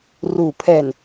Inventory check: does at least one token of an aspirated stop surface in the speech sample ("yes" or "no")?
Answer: yes